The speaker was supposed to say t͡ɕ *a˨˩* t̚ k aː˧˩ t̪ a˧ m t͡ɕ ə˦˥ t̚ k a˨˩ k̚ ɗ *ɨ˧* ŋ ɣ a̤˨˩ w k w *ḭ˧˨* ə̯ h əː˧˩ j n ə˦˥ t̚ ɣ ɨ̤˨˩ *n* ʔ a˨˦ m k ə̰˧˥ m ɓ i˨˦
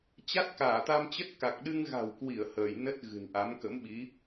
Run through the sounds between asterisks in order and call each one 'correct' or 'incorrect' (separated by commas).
incorrect, correct, incorrect, correct